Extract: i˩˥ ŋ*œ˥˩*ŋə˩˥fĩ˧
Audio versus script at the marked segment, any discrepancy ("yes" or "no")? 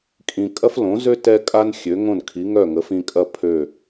no